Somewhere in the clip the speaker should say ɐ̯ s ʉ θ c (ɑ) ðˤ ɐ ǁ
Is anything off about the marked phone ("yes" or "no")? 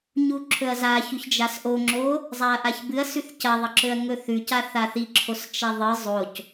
yes